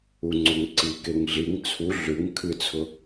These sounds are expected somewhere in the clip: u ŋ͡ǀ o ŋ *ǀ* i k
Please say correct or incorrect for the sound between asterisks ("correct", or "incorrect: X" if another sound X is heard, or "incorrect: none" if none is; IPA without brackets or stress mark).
correct